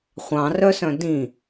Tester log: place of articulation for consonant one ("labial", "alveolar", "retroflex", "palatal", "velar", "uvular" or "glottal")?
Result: uvular